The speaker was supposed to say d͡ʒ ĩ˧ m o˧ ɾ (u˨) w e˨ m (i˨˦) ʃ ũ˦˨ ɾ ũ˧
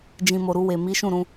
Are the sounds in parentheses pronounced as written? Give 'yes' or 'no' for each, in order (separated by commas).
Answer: no, yes